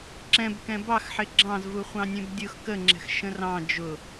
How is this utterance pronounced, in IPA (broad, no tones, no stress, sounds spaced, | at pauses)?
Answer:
ǁ ɛ̃ b k ɛ̃ b ɑ x ħ ɪ ɡ͡ǁ ɑ̃ z v u χʷ ɑ̃ nʲ ɛ̃ b dʲ ʊ x k ə ŋ͡ǁ ɛ̤ x ʃ ə̃ r ɑ̃ d͡ʒ ʊ